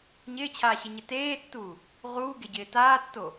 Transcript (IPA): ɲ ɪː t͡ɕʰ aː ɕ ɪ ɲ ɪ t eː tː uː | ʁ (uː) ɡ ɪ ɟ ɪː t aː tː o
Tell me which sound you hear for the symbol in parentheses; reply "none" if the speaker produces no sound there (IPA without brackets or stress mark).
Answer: uː